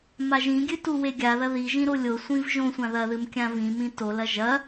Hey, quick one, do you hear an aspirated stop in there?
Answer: no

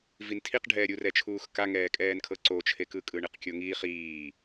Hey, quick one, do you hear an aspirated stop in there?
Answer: yes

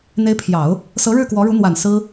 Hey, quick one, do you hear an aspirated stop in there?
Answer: yes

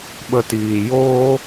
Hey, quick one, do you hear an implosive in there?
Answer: yes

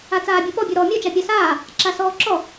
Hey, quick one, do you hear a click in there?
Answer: yes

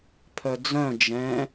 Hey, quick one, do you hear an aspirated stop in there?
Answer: yes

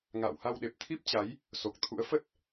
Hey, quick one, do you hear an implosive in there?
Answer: yes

